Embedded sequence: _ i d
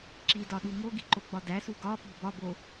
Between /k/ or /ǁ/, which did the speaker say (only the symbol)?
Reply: ǁ